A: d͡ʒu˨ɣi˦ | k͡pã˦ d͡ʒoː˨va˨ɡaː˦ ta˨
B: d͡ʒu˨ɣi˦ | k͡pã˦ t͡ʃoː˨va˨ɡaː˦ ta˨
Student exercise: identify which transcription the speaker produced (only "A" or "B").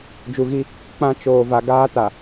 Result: B